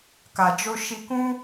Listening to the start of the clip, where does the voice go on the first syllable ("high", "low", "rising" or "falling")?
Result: low